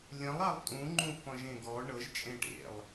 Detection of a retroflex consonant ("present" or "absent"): present